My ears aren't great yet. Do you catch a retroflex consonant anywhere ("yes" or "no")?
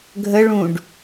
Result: yes